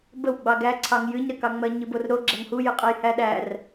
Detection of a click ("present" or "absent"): present